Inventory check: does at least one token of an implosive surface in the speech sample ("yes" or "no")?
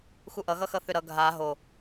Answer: no